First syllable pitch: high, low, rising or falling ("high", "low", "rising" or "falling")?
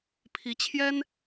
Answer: rising